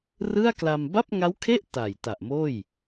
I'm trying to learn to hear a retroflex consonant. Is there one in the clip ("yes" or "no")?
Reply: no